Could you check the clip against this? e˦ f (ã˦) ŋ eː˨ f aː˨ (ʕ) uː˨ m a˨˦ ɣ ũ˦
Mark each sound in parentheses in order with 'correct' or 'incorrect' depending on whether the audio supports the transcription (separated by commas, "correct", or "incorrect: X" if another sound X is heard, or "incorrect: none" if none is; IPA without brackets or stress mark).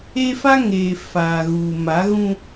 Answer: incorrect: a˦, incorrect: ɣ